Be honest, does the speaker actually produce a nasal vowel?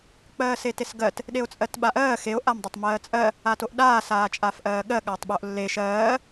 no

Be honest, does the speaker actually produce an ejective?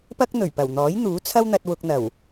no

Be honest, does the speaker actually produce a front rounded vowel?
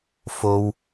no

